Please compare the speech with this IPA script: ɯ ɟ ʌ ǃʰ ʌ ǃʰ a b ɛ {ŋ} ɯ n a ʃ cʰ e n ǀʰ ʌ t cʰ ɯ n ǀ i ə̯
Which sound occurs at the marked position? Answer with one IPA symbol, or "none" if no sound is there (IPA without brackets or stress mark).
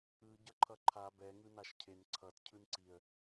ŋ